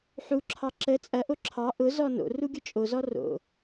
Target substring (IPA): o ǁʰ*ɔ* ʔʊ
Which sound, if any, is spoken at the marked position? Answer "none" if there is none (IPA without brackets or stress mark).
ɑ